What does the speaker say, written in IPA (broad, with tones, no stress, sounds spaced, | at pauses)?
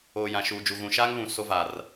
oː˨ j ã˨ ʃ uː˨ d͡ʒ u˨ ɣ ũ˨ ʃ aː˦ ŋ β ũ˨ s o˦ v aː˨ r